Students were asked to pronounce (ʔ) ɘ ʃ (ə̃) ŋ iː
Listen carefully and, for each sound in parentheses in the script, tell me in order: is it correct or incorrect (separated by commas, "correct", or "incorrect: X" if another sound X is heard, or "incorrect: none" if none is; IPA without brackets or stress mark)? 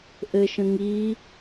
correct, correct